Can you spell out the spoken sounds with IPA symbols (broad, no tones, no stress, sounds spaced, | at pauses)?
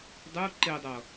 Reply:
dˤ u ǃ e dˤ ʌ